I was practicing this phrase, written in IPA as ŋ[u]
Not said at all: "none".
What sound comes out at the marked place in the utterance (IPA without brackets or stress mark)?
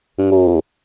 u